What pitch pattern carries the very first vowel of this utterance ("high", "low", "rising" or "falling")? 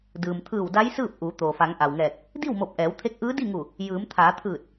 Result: low